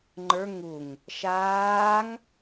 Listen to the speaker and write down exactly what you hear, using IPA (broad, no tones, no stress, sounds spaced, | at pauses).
ŋ͡ǃ ə˞ ŋ u ŋ | ʃ aː ŋ